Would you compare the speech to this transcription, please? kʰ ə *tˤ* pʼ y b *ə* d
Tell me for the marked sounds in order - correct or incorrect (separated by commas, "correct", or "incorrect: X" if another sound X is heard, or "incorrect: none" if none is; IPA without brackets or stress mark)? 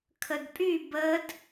incorrect: d, correct